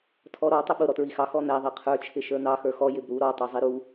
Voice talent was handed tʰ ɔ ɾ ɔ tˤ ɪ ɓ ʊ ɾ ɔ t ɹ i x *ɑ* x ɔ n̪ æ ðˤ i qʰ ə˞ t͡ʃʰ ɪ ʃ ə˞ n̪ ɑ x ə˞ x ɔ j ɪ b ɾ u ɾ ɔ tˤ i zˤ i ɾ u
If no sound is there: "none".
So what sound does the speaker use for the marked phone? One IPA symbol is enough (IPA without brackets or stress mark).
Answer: ɑ